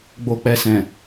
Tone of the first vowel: low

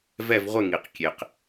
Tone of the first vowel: falling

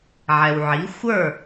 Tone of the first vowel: low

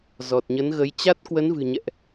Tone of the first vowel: low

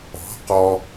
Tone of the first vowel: rising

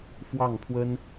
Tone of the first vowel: falling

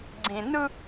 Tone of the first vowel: low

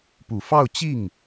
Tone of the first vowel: low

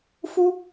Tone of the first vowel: high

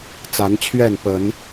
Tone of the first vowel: rising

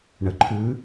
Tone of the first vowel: low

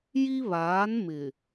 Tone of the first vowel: high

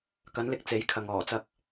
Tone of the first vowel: rising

